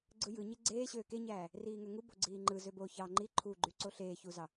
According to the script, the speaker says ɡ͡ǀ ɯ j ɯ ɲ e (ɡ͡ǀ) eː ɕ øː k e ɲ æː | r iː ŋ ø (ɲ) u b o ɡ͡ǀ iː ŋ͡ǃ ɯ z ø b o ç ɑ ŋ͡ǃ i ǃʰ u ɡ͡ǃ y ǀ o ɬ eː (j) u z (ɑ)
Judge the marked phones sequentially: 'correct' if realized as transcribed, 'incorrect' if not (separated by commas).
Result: correct, incorrect, incorrect, correct